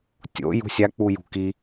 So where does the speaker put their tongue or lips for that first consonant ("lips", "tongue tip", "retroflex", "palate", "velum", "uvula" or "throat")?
tongue tip